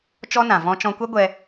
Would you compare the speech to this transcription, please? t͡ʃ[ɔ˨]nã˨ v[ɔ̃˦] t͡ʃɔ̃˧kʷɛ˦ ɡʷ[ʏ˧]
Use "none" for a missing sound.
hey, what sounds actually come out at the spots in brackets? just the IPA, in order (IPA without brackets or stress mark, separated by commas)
ɔ˦, ɔ̃˦, ɛ˧